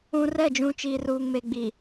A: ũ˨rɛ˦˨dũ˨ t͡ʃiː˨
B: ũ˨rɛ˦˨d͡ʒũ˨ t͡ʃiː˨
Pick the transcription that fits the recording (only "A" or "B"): B